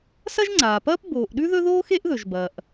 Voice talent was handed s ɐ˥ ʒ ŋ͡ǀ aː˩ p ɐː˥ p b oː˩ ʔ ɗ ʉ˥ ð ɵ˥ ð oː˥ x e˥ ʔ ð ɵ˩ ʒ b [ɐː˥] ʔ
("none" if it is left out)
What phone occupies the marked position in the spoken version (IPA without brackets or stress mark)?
ɐː˩